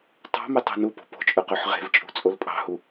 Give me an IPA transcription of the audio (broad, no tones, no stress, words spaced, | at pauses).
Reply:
tˤɑ̤me tˤo̤nupo̤ po̤t͡ʃʼɵ qøħʁe̤vt͡ʃʼṳ t͡sʼolpʼɑ̤hu